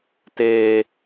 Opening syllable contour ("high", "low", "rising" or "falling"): high